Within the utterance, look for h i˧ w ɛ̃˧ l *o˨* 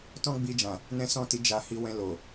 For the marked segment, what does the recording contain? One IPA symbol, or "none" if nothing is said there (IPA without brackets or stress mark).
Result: o˨